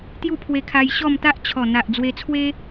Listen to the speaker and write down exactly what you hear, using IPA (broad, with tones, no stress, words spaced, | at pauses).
t̪ju˥˧pʰwe˧kʰa˧j ɕɔ˥˧m t̪a˦ʔt͡ɕʰɔ˨˩n̪a˨ʔ d͡zwe˧t͡sʰwe˦